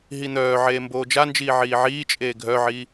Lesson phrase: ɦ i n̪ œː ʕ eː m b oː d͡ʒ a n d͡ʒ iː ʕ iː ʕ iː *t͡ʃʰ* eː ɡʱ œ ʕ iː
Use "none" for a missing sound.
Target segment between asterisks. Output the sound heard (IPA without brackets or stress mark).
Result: t͡ʃʼ